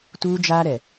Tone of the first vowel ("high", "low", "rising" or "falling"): high